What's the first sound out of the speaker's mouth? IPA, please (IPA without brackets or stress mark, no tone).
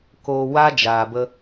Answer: k